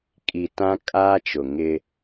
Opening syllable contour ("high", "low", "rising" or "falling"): low